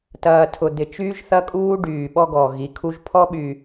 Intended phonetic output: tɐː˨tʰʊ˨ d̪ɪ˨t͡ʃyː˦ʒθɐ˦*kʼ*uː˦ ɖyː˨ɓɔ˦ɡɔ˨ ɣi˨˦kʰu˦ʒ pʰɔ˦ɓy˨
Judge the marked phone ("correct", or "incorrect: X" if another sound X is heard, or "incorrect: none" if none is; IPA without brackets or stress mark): correct